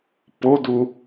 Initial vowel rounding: rounded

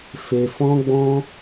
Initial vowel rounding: unrounded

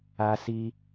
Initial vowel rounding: unrounded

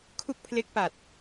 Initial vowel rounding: rounded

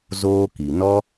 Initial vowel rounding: rounded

